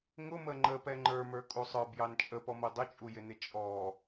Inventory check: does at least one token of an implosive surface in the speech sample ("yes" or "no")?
no